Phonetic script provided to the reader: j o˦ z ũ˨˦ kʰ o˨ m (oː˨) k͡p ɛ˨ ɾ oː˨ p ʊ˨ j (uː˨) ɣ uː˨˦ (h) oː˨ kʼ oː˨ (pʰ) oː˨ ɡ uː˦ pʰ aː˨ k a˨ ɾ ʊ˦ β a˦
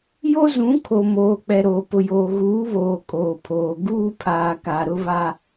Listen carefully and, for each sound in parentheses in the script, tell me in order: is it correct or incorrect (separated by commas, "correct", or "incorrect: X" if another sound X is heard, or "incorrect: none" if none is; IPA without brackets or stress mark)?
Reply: correct, incorrect: oː˨, incorrect: β, correct